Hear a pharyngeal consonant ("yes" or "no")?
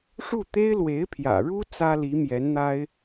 no